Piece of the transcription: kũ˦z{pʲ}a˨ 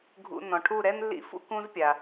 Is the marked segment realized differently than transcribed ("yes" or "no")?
no